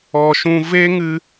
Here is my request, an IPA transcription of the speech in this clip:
ɔ˨ ʃ ũ˧ v e˦ ŋ ɨ˧

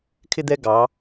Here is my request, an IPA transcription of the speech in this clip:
kʰ ɪ˥ d̪ ɛ˥ ɡ ɑ˧˥

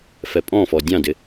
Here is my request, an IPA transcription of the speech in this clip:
f ɛ pʼ ɔ̃ f ɔ dʲ ɑ̃ d ɪ

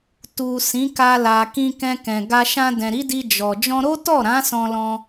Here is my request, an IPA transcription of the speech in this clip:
t u˨ s ĩ˨˦ k a˧ l a˨ k ĩ˧ k ɛ̃˧ k ɛ̃˨ ɡ a˧ ʃ ã˧ d ɛ̃˨ ɾ i˨˦ d i˧ d͡ʒ ɔ˨ d͡ʒ ɔ̃˧ ɾ o˦ t ɔ˦˨ ɾ ã˨˦ s ɔ̃˧ l ɔ̃˧

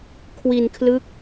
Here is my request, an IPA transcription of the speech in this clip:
kʰ w i˧ n kʰ l ɯ˦˥ k̚

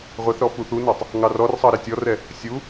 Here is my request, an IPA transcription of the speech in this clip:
ʁʷ ɛ θ ɾ ɔ f u θ u n ɑ tˤ | ŋ ɑ r ɔ r sˤ ɑ ɾ e tʲ ɔ r ɛ | sʲ u

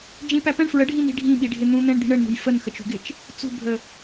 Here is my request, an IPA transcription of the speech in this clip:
d͡ʒ ĩ p æ p ɛ̃ ɳ f ɹ ə ɖʱ ĩ n i̤ ɖʱ ĩ ɓ i ɖʱ ɪ n̪ ũ n̪ ɛ̃ ɳ d̪ i̤ ɳ ə ɳ n̪ ṳ j f ə n x ə t͡ʃ ṳ ɡ ɪ t͡ʃ | t͡s ṳ bʱ ə

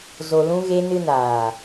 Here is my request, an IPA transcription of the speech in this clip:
z o˧ l ũ˦ ɣ e˦ n ɨ˧ n aː˨

